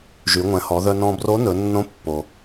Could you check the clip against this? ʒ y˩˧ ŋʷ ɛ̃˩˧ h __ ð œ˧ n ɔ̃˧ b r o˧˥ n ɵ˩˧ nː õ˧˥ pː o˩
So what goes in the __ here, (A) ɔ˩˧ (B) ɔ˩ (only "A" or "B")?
A